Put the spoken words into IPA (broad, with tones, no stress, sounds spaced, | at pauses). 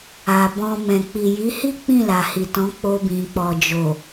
a˨ b ɔ̃˧ m ɛ̃˨ k͡p i˨ j i˨˦ h i˦ k͡p ĩ˦˨ l a˨ h i˨ t ɔ̃˨˦ k͡p o˧ b ĩ˨ k͡p ɔ˨ d͡ʒ o˨